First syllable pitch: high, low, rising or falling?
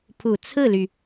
low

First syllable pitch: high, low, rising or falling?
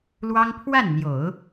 high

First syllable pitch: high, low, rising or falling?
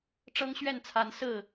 high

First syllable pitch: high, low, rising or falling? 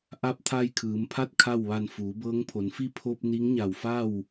rising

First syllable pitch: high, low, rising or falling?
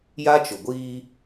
high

